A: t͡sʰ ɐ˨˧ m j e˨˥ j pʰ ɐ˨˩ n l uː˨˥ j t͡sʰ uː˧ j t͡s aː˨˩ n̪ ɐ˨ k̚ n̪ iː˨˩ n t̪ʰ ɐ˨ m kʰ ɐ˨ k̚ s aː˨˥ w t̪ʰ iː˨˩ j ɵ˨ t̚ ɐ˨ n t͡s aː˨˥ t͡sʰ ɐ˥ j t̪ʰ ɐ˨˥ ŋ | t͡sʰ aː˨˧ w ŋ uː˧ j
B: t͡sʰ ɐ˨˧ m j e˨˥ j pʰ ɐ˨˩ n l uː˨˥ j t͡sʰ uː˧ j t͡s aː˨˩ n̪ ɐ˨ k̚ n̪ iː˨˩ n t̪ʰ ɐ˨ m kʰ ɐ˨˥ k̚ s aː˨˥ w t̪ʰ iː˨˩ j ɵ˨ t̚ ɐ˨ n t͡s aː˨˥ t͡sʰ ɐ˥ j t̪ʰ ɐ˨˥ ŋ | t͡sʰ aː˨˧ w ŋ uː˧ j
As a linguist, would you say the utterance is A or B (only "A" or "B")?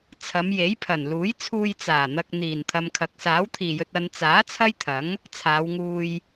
B